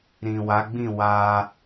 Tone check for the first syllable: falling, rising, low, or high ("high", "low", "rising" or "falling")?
low